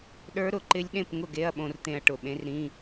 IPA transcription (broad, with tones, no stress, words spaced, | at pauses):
ɗə˞˧˥ɾʊ˨˩˦ǃɪ˧˥lʲ ɗẽ˥˨pŋʊ˥˨ɡe˧˥˧ɐ̯ ɓõ˧rt̪ẽ˧ɐ̯ ʈʊ˧˩ɓẽ˧˥rɾĩ˧˥˧